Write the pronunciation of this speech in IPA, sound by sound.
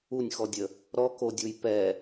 u nʲ x ɔ dʲ ə | ɾ ɔ k o dʲ u j p ɛ

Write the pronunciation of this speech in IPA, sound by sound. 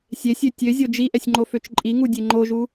sʲ e sʲ ø tʲ ø zʲ o d͡ʒ i ʔ ɛ sʲ ŋ͡ǃ o f ø t͡ʃ ǃʼ i ŋ u dʲ e ŋ͡ǃ o ʒ u

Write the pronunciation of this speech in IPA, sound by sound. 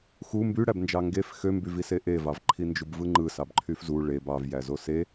x u m b y ɽ æ b n d͡ʒ ɑ ŋ ɡ e f x ø m b y v i s e ʔ e v ɑ v ǃʰ i n d͡ʒ u b v ɯ ŋ͡ǃ ɯ s ɑ b ǃʰ y f z u ɭ e b ɑ v j æ z o s e

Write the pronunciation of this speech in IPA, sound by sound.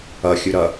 ɐ xʲ ɨ ɾ ɐ

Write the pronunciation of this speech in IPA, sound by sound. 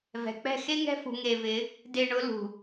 v ɛ̤˨ k͡p ɛ̤˦˨ x e˦ ŋ ɛ̤˦ f ṳ˧ ŋ e˧ v ɪ˨˦ | d e˧ ɳ ʊ˨˦ l ṳ˨

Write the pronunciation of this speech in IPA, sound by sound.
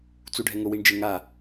t͡s u ɖʱ ɛ ŋ ʊ w i ɳ d͡ʒ ɪ ŋ a

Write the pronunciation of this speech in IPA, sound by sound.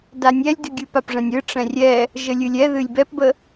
d a nʲ ɛ lʲ d ɨ ɡʲ ɨ p a p ʐ ɛ̃ nʲ ɨ ʈ͡ʂ ɛ̃ rʲ ɛ | ʒ ə lʲ ɨ lʲ ɛ ð ɨ lʲ b ɛ p b ə

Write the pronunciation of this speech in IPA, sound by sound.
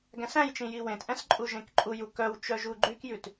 ɡ æ̃ s æ̃ j t͡ʃ ĩ j i w ẽ t ʔ ɛ̃ s ǃʼ u ʒ ẽ k ǃʼ u j u k œ w t͡ʃ œ ʒ u ɡ͡ǃ y k j ʉ t

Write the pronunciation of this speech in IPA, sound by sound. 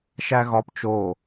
ʃ æ ɣ ɒ p t͡ʃ o

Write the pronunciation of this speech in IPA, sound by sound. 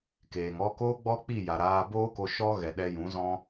k eː˨ ŋ ɔ˦ k oː˦ ɡ͡b ɔ˦ k͡p i˦˨ j a˨ ɾ aː˧ b oː˦ k o˧ ʃ ɔ˦ ɣ ɛ˨ ɗ ɛ˧ j ũ˨˦ z ɔ̃˦

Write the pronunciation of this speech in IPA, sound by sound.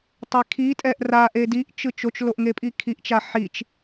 tˤ e kʰ i tʼ ɛ ʔ r a ʔ e d i ʔ t͡ʃ ɯ t͡ʃ o t͡ʃ l o ʔ ŋ e pʼ i kʰ i ʔ t͡ʃ a ħ i t͡ʃ

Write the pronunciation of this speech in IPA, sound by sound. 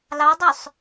l ɑ dˤ œ sˤ

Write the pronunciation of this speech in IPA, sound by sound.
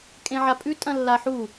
kʼ ẽ ʕ a pʼ ʉ tʼ ɐ̃ lː a ħ u

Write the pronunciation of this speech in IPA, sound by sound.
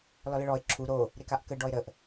l ɔ l ə ɭ ɔ ɪ̯ ǁʰ u ɾ o | ɾ e k a ʔ k ə ɖ ɔ ɪ̯ ɾ ə ʔ

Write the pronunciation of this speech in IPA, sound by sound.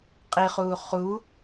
qʼ i χ uː χ u

